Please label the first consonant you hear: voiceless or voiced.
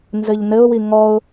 voiced